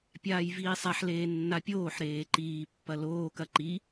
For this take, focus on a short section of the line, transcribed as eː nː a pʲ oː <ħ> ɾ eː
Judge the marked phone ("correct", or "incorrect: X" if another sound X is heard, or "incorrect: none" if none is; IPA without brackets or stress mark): correct